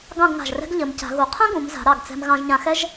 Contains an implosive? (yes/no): no